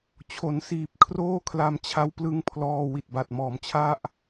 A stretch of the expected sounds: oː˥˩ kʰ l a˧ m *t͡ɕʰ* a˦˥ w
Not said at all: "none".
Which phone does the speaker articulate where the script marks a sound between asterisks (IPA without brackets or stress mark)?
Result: t͡ɕʰ